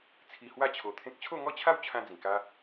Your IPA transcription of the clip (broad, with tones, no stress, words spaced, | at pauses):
t͡sʰi˧hwa˥˧t͡ɕʰo˧t̪ʰẽ˦k̚ t͡ɕʰo˥˧ŋɔ˥˧t͡ɕʰa˥˧wt͡ɕʰã˧ d͡zĩ˨˩ka˦